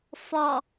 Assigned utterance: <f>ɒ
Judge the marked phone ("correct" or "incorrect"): correct